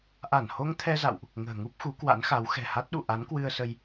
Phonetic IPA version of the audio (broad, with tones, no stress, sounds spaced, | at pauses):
ʔ a˧˩ n h o˧ ŋ t̪ʰ ɛ˧ z a̰˧˨ w ʔ | ŋ ə̤ː˨˩ ŋ u˦˥ p̚ x u˨˦ k w a̰˧˥ n x a˨˦ w x ɛ̤˨˩ h a˦˥ t̚ ɗ ṵ˧˨ ʔ a˨˦ n k w ɨ˧ ə̯ s ə˧ j